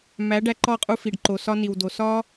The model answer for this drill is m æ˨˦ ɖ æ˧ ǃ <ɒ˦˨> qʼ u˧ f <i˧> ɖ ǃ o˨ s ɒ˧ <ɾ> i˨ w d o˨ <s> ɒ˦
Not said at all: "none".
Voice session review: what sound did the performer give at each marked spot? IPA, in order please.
ɒ˦˨, i˨, n, s

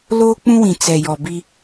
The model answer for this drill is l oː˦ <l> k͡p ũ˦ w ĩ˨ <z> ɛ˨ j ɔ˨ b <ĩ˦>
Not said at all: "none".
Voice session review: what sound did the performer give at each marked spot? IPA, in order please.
none, t͡s, i˦

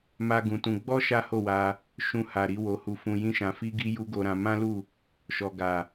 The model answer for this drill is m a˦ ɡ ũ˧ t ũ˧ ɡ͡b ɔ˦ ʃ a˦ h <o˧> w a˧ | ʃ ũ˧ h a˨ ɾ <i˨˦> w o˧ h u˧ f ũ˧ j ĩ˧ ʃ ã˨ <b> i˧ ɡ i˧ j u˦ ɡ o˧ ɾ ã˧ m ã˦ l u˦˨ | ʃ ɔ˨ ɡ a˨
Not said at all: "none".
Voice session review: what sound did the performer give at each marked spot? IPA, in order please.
o˦˨, i˨˦, f

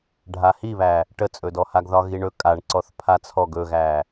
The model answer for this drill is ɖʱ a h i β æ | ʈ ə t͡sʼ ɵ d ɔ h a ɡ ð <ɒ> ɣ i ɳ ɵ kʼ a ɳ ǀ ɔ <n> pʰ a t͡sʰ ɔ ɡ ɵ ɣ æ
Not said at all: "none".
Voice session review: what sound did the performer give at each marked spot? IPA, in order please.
ɒ, θ

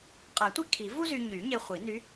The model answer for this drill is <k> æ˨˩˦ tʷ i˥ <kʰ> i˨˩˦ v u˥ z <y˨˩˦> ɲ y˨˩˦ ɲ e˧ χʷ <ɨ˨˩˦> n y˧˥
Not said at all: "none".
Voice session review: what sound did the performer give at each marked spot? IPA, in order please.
qʼ, kʰ, y˧, i˨˩˦

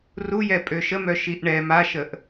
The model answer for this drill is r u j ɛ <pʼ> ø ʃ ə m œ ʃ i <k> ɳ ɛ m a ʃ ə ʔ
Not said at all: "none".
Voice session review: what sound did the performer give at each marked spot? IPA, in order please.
pʼ, ʔ

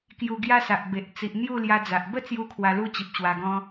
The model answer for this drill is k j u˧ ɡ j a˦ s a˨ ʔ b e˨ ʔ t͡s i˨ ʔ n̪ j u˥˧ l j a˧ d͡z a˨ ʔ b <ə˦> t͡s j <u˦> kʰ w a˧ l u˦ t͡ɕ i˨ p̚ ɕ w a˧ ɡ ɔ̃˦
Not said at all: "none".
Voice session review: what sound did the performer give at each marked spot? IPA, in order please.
ə˥˧, u˥˧

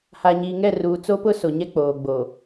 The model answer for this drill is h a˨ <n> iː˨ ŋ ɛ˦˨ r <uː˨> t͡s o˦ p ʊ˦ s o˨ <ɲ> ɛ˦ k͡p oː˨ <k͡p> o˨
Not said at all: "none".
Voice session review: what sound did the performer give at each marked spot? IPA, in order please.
ɲ, uː˨, ɲ, ɡ͡b

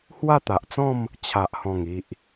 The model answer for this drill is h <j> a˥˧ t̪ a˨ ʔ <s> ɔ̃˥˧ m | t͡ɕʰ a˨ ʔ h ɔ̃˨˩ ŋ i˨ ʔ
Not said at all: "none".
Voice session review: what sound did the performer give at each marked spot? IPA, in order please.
w, t͡s

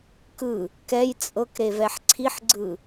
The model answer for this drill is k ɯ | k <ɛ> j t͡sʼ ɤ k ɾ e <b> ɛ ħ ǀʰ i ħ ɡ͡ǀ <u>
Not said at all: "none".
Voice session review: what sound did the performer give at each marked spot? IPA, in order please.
ɛ, v, ɯ

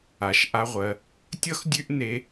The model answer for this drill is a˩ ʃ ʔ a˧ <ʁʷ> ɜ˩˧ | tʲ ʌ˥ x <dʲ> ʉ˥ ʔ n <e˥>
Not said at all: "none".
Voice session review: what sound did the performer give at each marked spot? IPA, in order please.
ʁʷ, dʲ, e˧˥

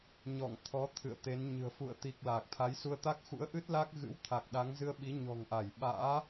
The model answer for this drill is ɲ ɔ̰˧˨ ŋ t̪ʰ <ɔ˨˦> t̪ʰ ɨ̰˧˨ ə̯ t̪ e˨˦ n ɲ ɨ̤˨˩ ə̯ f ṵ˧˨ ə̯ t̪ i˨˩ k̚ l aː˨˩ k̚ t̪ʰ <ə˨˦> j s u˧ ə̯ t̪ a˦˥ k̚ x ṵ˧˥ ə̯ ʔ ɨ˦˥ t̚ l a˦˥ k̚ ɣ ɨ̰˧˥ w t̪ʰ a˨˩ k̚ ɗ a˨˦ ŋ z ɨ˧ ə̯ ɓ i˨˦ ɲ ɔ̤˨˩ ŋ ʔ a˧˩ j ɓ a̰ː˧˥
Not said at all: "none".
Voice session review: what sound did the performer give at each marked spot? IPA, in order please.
ɔ˨˦, a˨˦

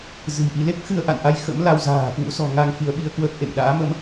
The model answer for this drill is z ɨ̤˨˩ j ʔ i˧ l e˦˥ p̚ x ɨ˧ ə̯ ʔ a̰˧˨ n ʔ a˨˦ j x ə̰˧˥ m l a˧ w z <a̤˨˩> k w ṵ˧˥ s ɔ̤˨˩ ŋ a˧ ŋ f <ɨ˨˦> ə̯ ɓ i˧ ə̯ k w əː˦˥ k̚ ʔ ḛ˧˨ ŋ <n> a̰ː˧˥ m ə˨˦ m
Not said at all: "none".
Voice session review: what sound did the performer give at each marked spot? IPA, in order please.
a̤ː˨˩, i˨˦, ɗ

